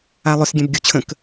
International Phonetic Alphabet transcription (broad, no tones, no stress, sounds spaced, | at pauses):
a lˠ ʏ s ɡʲ ɛ̃ b ɡʲ u t͡ɕʰ ə̃ k